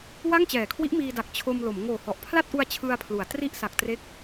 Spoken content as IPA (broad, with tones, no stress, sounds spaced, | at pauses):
w a˥˩ ŋ t͡ɕ ɛː˨˩ kʰ w i˦˥ ʔ m iː˧ d a˨˩ k̚ t͡ɕʰ o˧ m l o˩˦ m ŋ oː˨˩ h ɔ˨˩ ʔ pʰ l a˥˩ t̚ ʔ u˧ a̯ t͡ɕʰ ɯ˧ a̯ pʰ l u˩˦ a̯ t r i˥˩ ʔ s a˨˩ k̚ t r e˦˥ k̚